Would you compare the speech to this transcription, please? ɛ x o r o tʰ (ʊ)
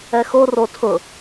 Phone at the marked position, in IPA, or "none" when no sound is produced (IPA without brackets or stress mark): ʊ